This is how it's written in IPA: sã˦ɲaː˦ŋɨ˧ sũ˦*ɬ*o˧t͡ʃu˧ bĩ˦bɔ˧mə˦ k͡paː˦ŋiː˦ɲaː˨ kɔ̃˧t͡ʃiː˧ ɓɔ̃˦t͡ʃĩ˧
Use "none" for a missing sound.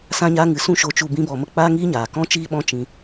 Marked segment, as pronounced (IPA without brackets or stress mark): ʃ